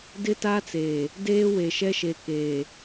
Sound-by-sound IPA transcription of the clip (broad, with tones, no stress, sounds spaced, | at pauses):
d ɪ˦ t a˦ t͡s eː˨ | d eː˦ w e˨ ʃ ɛ˦ ʃ e˨ k eː˨